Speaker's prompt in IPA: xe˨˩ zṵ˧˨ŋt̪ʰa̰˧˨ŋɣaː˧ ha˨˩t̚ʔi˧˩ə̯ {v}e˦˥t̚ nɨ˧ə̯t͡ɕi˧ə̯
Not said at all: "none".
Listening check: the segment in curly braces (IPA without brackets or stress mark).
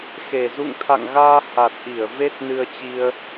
v